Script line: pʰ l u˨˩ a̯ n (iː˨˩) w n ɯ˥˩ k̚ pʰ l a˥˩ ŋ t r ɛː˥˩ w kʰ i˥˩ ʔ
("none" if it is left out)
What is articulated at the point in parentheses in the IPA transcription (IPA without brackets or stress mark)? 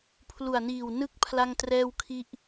iː˨˩